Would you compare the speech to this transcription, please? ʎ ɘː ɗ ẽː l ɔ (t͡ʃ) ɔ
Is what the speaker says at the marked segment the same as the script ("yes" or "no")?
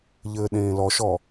no